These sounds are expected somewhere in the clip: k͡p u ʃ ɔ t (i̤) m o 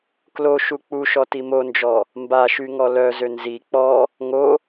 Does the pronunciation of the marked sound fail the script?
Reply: yes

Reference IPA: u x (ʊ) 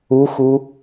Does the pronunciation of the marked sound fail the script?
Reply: yes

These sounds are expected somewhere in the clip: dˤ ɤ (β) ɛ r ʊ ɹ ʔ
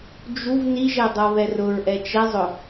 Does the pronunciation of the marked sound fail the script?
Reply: no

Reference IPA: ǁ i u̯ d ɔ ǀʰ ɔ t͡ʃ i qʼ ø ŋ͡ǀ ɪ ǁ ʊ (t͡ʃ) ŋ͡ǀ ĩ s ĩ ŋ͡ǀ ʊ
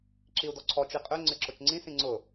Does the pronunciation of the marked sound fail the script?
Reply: no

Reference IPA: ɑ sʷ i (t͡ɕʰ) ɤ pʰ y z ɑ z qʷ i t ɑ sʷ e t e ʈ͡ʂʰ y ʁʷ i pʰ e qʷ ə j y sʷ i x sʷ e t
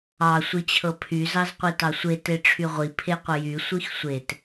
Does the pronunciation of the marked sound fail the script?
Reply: no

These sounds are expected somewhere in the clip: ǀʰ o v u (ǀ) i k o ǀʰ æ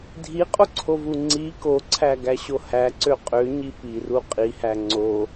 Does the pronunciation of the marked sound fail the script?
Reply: yes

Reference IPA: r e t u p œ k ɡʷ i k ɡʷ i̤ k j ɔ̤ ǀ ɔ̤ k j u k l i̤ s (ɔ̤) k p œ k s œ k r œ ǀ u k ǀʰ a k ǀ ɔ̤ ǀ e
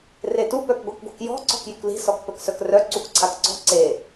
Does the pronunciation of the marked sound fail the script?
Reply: yes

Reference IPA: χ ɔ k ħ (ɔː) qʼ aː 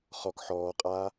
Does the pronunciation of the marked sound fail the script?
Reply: no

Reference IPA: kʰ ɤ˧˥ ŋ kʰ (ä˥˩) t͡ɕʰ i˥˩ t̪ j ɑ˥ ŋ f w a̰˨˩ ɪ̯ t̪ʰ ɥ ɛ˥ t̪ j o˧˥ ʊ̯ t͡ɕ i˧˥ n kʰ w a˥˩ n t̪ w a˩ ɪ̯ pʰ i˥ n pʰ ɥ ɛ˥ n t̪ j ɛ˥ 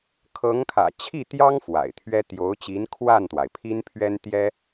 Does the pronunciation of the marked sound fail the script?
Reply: yes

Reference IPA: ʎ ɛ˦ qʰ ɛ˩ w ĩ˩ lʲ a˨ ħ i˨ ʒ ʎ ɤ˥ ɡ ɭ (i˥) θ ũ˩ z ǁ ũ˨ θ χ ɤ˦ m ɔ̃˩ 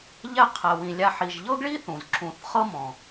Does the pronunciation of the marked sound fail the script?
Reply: no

